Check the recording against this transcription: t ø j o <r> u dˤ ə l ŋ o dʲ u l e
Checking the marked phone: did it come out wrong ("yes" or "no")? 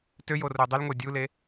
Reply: no